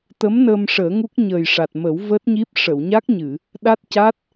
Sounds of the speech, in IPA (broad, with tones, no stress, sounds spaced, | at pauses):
t̪ ə˧˥ m n əː˧ m ʂ əː˨˩˦ ŋ u˦˥ k̚ ɲ əː˨˩ j ʂ a˨˩ t̚ m ə˨˩˦ w v əː˦˥ t̚ ɲ i˦˥ p̚ ʂ ə˨˩˨ w ɲ a˦˥ k̚ ɲ ɨ˨˩˨ | ɗ a˦˥ t̚ c a˦˥ t̚